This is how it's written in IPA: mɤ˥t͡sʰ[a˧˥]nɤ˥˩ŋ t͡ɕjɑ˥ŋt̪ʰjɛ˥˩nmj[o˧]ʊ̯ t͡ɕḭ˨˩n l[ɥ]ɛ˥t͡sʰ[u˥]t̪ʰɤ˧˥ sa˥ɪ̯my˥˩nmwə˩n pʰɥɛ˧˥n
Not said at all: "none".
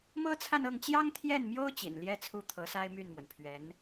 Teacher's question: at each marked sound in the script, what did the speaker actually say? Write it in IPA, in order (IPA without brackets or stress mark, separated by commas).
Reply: a˥˧, o˥, j, u˥˩